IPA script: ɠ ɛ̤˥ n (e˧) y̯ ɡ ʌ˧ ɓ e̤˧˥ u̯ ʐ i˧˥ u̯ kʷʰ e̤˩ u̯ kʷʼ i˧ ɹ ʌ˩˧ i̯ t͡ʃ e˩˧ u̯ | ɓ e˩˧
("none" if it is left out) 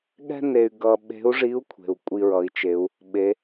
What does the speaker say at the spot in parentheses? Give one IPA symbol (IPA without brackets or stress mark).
e˧